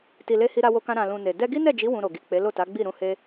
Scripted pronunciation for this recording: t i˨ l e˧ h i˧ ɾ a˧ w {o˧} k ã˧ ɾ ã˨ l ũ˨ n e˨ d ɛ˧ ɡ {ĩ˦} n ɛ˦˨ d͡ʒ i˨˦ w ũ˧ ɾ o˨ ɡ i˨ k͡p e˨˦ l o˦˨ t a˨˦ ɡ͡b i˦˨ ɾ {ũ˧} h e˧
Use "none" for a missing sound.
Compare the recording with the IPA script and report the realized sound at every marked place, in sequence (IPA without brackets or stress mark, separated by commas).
o˧, i˦, ũ˧